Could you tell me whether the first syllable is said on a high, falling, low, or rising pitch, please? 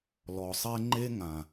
low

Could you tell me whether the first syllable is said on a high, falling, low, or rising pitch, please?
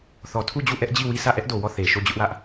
low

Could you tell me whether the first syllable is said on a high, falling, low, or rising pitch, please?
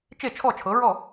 falling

